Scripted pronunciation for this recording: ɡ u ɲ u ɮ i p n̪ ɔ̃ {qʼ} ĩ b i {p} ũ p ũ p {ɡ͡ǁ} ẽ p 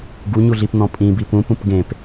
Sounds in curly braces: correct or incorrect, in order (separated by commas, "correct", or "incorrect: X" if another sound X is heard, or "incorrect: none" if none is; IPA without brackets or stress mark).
incorrect: pʼ, correct, incorrect: ɡ